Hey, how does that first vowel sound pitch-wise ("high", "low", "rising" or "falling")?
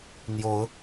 rising